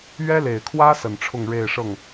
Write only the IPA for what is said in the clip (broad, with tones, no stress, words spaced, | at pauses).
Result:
ɥɛ˥le˨˩ɪ̯kʰwä˥ sə˨˩nʈ͡ʂʰʊ˥˧ŋ ɻe˥˧ɪ̯ʂɤ˥˩ŋ